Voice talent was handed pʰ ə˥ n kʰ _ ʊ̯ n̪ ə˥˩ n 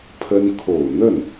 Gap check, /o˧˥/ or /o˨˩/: o˨˩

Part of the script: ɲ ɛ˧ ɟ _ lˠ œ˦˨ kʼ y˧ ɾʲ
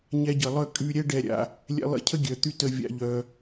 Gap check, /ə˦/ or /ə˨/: ə˨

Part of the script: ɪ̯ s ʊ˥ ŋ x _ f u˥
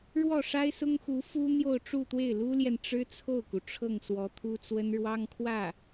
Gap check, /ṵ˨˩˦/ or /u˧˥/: u˧˥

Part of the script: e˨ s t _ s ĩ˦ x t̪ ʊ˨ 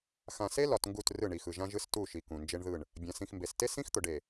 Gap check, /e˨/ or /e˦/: e˦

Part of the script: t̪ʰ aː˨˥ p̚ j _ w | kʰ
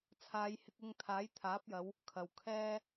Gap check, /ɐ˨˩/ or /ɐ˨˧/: ɐ˨˧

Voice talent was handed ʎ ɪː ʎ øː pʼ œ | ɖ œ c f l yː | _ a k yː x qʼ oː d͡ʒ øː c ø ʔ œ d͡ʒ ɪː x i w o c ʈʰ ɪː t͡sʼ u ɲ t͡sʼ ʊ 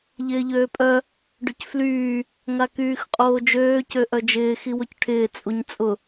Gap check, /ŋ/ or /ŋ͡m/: ŋ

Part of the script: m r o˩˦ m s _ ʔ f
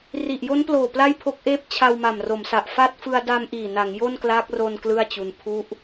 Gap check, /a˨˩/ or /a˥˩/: a˨˩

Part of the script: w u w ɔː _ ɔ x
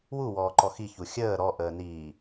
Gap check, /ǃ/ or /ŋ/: ǃ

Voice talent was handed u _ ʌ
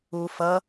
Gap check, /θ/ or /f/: f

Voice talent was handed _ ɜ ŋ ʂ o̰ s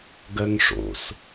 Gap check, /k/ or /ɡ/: ɡ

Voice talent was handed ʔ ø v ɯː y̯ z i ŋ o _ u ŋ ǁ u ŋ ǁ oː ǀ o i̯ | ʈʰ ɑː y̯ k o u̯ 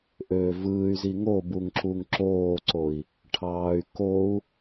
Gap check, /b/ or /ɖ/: b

